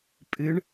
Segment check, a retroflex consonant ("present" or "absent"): present